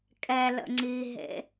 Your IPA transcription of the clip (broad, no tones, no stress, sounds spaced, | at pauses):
kʼ ɛ l ə̰ ŋ͡ǀ i ɦ ḛ